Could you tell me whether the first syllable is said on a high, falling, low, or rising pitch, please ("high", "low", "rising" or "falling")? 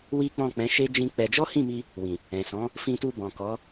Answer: high